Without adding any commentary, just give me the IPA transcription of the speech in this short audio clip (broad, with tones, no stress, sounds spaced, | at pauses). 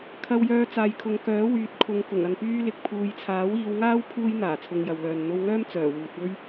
kʰ ɐ˧ w j œː˧ t͡s aː˨ j kʰ ʊ˨ ŋ k œː˨˥ w yː˨˥ t̚ kʰ ʊ˨ ŋ k ʊ˨˩ ŋ ɐ˨ n p yː˥ l ɪ˨ k̚ pʰ uː˨ j t͡sʰ aː˨˥ w iː˨˧ w ŋ aː˥ w pʰ uː˥ j n̪ aː˨˩ t͡sʰ ʊ˧ ŋ j ɐ˨ w l œː˨ n n̪ o˧ w ŋ œː˥ m t͡s œː˨˩ w uː˨ t̚ w ɵ˥ ɥ